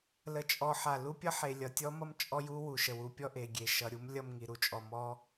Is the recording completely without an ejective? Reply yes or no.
no